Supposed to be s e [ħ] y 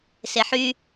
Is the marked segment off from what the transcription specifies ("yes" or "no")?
no